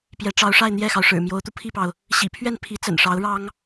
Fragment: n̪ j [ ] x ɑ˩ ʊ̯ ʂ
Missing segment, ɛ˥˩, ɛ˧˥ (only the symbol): ɛ˥˩